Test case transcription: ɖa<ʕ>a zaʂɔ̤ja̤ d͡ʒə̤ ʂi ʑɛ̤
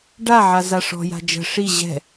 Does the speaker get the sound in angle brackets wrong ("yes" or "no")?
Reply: no